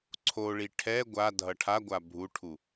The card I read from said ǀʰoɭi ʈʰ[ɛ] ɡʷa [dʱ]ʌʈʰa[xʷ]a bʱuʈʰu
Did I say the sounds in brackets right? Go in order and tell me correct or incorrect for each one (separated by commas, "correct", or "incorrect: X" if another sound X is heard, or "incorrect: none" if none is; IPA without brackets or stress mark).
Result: correct, correct, incorrect: ɡʷ